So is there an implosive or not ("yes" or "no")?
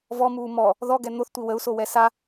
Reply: no